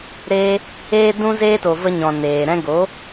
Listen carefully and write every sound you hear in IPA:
ɾeː˧ | eː˦dũ˦zeː˦to˨ və˧ɲɔ̃˨ neː˨ ɾɛ̃˧ɡo˨˦

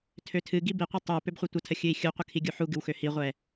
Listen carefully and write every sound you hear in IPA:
tʰøtʰɨ ɡibiqʷɨ tˤu pøbχʷɨtʷətʰə xʲɨi̯xʲuqʷə kʰiɡʲuħuɡɨw xøhiʁʷɛ

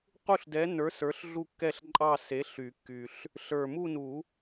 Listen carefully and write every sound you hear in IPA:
qu˥˧ɬdɛ˨˥nə˞˨˥ sə˞˨˥ɬɮu˥˧kːɛ˥˧ɬǃʼɑ˥˧ se˨˥ ɬy˨˩˦kːy˨˩ɬ | ɬə˞˨˩mu˥˧nu˨˩˦

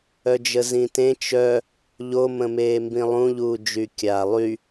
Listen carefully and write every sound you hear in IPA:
œd͡ʒəzĩtẽ t͡ʃœ | ʎomə̃meː mbĩlˠũʎuː d͡ʒykʲaːlˠy

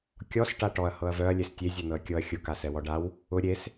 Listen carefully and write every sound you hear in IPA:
kʲɔs ʈaʈɔɐ̯ hɤɐ̯vœɐ̯ lʲestʲe zʲɛnɤɐ̯kʲɤɐ̯ xʲʊ kasɛwɔɖaw | ʊ ɾʲes

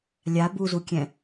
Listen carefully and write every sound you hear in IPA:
lʲa buzukʲɛ̃

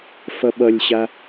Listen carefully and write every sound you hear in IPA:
fʌɓʌlʲɕa

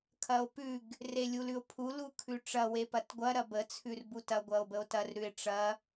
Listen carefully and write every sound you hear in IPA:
kʰɐo̯pʉɡ | relʲulʉo̯pʰu lukʰʉʈ͡ʂɐ wepɐtɡʷɐ ɾɐbə t͡sʰʉrbutɐ ɡʷɐo̯bəo̯tɐr ɾʉe̯ʈ͡ʂɐ

